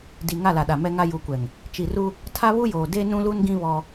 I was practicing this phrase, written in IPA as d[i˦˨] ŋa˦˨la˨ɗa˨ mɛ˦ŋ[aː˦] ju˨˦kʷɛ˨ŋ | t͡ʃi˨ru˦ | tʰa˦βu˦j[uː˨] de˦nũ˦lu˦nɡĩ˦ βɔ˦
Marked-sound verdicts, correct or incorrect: incorrect, incorrect, incorrect

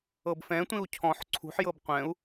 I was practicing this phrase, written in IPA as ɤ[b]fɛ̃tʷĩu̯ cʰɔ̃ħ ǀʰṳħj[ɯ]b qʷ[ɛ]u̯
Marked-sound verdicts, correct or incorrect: correct, incorrect, incorrect

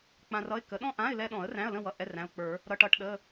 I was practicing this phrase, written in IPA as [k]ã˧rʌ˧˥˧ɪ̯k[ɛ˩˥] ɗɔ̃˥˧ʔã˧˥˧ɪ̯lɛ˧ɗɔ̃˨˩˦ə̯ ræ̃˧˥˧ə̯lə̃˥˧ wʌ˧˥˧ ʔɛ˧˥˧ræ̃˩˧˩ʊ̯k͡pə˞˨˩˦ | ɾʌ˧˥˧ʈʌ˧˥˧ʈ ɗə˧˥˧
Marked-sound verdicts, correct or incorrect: incorrect, incorrect

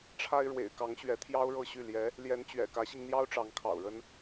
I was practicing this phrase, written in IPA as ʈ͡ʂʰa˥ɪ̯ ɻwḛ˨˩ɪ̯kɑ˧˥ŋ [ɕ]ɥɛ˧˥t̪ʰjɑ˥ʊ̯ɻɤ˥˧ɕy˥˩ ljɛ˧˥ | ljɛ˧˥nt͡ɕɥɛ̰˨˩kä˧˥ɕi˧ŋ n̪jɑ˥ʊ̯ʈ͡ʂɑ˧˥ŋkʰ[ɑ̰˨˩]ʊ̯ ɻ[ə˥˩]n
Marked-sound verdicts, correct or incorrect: correct, correct, incorrect

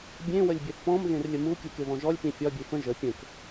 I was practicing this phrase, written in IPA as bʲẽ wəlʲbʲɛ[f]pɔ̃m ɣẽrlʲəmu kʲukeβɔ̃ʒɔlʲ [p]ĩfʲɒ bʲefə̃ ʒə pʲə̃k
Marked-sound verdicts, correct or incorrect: incorrect, correct

